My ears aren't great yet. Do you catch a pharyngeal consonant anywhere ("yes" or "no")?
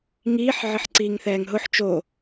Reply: yes